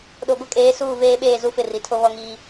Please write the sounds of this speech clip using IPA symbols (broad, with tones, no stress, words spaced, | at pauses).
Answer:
ɗo˨ɡʷɪ˦kʼeː˨˦ suː˦˨veː˦ɓeː˦˨ zu˦fɪ˦˨ri˨tʰo˦ βɔ˦ŋiː˦